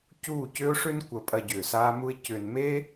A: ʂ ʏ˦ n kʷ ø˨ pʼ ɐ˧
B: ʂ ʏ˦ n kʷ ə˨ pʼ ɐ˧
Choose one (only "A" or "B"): B